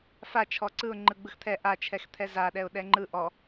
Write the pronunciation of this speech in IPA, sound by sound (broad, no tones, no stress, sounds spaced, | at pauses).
f a t͡ʃʰ ɔ ǀ ɯ ʊ̯ ŋ͡ǃ ɯ ɡ͡b ɯ x t̪ʰ ɛ ʔ a t͡ʃʰ ɛ x t̪ʰ ɛ z a ɗ ɛ ʊ̯ ɗ ɛ ŋ͡ǃ ɯ ʔ ɔ